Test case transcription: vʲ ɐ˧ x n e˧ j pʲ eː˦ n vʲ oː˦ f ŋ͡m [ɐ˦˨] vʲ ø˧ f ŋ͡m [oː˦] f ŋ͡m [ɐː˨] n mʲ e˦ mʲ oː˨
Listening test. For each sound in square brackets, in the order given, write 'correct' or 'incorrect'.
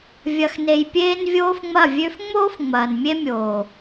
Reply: correct, correct, correct

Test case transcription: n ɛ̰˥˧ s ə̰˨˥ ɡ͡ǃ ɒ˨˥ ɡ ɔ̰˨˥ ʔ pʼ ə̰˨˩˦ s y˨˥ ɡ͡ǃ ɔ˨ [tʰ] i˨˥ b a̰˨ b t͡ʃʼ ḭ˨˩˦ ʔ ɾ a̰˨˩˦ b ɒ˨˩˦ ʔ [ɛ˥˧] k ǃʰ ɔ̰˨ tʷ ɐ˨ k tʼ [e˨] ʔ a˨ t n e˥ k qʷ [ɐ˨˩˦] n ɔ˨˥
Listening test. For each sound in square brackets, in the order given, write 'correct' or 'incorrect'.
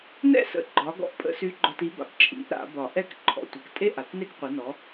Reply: incorrect: t, correct, incorrect: e˥, incorrect: ɐ˨˥

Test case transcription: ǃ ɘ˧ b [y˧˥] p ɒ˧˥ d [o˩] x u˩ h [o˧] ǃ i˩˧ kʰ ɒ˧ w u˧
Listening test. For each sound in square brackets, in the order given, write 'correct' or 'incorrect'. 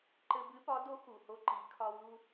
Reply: incorrect: ɨ˧˥, incorrect: o˧˥, correct

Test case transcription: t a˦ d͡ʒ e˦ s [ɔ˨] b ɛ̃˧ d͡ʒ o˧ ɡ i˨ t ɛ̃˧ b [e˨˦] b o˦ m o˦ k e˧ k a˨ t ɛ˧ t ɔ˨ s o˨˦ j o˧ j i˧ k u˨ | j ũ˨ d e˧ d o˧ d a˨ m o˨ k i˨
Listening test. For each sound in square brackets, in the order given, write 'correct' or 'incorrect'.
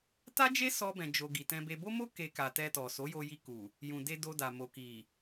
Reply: incorrect: ɔ˦, incorrect: e˧

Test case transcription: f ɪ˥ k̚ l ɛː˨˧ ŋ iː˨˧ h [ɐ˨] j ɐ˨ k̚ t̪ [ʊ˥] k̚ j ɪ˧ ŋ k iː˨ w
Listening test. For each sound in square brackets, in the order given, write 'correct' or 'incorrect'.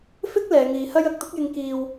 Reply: incorrect: ɐ˥, correct

